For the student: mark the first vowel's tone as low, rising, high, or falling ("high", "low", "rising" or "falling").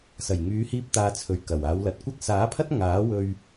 low